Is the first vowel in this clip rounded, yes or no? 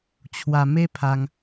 no